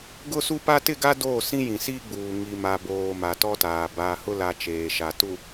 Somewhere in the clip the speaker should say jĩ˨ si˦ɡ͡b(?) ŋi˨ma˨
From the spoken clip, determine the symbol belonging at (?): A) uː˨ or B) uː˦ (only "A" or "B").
A